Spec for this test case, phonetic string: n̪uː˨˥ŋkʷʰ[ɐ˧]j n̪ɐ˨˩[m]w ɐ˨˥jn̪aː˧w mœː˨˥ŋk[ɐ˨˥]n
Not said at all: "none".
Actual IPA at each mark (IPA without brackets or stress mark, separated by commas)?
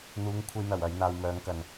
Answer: ɐ˧, none, ɐ˨